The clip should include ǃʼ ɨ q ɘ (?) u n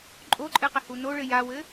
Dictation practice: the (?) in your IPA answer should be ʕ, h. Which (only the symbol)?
h